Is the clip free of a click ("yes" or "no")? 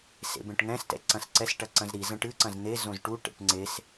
no